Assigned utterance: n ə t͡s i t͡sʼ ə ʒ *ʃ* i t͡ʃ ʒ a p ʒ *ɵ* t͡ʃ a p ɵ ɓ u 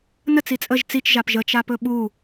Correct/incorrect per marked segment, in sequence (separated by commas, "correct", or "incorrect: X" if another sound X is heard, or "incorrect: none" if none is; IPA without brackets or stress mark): incorrect: t͡s, incorrect: ə